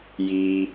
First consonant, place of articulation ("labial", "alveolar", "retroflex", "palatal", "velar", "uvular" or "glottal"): palatal